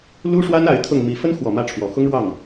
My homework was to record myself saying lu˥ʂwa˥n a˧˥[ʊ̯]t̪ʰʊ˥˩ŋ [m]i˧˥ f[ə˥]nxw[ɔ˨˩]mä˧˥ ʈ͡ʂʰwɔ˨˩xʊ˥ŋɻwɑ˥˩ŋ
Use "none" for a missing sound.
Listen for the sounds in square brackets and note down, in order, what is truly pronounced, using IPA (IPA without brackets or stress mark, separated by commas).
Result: ɪ̯, m, ə˥, ɔ˨˩